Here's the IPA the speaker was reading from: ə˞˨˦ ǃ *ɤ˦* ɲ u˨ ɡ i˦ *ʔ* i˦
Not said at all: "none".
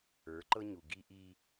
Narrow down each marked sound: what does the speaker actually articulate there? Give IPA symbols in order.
ɤ˦, ʔ

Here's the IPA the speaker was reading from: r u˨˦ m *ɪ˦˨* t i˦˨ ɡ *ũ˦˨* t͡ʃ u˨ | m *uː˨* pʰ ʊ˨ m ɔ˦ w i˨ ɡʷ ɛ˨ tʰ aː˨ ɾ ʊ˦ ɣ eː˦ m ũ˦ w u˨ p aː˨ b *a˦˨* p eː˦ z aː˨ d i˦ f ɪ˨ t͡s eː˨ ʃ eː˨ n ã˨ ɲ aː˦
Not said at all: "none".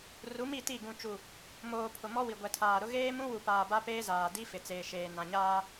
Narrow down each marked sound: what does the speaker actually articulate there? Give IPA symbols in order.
i˦˨, ũ˨, oː˨, a˦

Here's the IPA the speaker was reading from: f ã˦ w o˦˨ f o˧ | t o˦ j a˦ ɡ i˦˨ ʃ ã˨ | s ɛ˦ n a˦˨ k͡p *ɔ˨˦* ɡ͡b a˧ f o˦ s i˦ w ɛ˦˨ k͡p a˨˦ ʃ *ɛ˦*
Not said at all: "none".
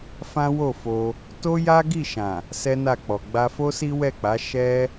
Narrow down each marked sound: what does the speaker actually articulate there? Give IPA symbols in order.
ɔ˨, ɛ˦

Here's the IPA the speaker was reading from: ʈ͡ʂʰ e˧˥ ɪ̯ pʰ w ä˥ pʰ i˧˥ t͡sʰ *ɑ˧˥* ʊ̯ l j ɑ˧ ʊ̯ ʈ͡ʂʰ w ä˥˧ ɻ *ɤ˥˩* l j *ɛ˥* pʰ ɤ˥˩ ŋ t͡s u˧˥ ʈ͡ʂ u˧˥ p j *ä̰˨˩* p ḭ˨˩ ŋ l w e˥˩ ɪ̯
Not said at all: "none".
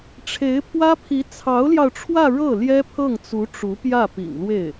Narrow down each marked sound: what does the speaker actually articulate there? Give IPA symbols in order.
ɑ˧˥, ɤ˥˩, ɛ˥, ä˥˩

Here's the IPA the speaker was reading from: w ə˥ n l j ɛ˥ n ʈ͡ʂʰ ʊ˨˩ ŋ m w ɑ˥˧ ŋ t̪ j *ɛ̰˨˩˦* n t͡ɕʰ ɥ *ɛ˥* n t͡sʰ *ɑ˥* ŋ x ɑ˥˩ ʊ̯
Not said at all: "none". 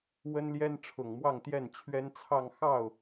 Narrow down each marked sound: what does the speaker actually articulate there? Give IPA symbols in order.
ɛ˥˩, ɛ˥, ɑ˥˧

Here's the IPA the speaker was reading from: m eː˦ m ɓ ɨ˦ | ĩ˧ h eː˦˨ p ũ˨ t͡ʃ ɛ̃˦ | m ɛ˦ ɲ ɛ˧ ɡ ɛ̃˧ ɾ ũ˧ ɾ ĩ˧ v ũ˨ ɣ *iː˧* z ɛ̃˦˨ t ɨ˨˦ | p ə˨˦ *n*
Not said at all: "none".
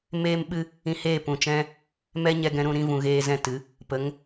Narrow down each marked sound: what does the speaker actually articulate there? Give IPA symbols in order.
eː˧, ŋ

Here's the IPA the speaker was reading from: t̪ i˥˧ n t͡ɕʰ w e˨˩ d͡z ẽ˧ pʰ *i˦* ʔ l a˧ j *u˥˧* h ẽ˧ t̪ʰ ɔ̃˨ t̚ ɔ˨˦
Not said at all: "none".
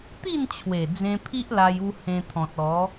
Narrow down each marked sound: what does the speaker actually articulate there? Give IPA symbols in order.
i˦, u˧

